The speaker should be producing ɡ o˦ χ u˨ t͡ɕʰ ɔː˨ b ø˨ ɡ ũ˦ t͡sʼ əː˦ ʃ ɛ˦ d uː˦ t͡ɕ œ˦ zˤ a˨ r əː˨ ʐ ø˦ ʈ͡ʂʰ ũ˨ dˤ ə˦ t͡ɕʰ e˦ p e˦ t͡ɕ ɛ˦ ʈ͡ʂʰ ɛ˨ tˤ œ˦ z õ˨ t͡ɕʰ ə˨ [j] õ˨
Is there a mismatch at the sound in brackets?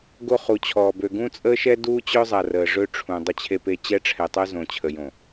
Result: no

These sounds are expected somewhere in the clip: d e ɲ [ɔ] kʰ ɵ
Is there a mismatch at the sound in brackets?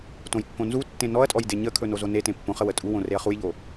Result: yes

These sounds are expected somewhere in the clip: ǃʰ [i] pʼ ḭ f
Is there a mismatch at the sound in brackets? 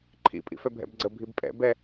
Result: yes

